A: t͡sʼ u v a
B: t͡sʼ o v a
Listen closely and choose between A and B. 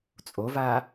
B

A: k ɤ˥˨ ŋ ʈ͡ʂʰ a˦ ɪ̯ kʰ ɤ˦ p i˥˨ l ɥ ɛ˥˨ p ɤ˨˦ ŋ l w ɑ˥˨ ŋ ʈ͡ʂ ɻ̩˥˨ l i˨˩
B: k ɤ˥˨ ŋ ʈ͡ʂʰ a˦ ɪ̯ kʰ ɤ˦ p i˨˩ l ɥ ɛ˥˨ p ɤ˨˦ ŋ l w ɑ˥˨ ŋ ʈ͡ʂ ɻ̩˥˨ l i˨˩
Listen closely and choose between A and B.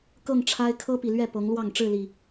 B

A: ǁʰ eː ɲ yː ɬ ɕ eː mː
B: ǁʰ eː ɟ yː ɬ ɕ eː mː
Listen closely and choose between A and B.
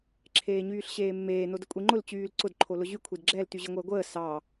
A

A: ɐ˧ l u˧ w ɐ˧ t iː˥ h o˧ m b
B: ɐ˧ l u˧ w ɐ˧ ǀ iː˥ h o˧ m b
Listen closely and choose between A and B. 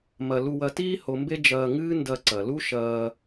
A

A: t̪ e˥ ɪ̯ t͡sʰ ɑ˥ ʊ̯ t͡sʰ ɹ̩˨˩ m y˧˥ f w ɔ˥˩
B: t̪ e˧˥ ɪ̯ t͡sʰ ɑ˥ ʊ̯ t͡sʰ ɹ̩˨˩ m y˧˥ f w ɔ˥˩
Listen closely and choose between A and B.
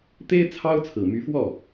A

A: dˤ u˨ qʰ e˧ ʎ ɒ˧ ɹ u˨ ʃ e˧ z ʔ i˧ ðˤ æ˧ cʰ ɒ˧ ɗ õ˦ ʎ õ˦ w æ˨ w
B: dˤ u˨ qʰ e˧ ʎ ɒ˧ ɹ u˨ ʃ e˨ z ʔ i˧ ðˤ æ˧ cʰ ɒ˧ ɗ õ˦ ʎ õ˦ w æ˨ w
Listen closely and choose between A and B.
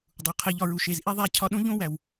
B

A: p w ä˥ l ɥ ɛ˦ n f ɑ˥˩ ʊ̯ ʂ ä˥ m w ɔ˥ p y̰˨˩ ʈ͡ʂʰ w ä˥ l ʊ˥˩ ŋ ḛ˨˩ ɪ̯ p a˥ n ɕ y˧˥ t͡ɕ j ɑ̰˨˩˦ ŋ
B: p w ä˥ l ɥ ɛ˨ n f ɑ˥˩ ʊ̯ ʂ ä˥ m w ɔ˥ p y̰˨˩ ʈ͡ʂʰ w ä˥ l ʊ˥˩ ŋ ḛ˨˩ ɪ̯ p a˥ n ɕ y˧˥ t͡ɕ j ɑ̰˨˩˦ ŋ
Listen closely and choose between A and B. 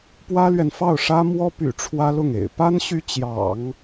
B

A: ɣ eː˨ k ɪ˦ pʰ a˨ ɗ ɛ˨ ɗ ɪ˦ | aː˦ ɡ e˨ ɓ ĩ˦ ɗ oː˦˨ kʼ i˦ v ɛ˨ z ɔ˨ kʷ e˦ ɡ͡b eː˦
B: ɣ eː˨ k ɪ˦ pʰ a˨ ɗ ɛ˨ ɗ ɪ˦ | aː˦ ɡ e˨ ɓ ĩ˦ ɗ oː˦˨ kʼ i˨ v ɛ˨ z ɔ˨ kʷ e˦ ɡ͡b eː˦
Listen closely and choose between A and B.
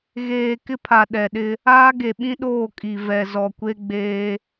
B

